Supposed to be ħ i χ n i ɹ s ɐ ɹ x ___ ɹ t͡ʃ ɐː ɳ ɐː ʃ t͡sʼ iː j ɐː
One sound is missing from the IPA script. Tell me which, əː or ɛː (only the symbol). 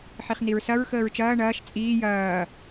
əː